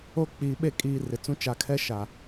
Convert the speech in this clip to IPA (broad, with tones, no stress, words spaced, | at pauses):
o˦ k͡piː˨ɓe˦˨ kʼiː˨ rɪ˨t͡sũ˦ t͡ʃa˨kʰɛ˦ ʃa˨